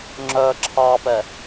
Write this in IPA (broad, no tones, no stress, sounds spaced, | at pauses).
ŋ͡ǁ œ ǁʰ ɑ p ɛ